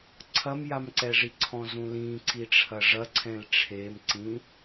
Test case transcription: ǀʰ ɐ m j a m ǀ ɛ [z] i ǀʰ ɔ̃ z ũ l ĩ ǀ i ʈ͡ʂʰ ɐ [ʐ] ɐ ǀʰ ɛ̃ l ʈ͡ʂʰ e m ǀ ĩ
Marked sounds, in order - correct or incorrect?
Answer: incorrect: ʐ, correct

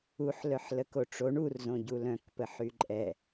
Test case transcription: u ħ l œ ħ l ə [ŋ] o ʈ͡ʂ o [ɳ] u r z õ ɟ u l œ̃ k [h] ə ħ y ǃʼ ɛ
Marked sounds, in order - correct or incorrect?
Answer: incorrect: k, correct, incorrect: p

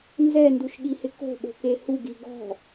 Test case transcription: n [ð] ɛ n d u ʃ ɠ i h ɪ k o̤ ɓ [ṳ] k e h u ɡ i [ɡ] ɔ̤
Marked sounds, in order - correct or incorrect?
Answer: incorrect: z, incorrect: o̤, correct

